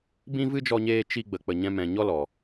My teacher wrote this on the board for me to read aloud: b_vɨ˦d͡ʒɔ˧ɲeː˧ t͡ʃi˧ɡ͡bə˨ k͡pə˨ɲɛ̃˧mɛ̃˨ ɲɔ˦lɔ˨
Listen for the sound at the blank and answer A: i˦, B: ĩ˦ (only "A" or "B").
B